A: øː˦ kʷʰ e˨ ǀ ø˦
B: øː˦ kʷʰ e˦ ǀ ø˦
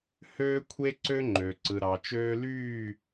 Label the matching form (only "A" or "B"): B